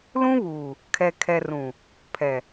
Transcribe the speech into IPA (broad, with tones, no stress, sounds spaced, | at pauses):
l ũ˦ β uː˨ | kʰ ɛ˨ kʰ ɛ˨ r ũ˨ | pʰ ɛ˨